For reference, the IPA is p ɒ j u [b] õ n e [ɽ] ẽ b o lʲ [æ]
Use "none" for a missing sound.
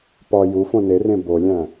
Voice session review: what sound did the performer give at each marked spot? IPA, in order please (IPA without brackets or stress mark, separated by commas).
f, r, æ̃